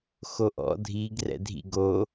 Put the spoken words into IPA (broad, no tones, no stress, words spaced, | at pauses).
xoʔɔ̰ dʱiɡ rɛ̰dʱḭ ɡo